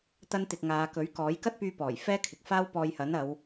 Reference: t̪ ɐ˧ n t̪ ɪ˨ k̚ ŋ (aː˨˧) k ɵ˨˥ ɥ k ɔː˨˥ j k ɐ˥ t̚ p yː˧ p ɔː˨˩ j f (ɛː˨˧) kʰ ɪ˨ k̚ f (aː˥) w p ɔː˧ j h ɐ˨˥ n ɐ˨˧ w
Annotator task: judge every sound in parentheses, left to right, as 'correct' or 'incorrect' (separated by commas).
correct, incorrect, correct